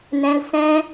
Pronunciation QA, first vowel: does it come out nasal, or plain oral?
nasal